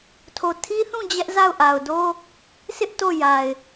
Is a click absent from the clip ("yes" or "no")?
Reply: yes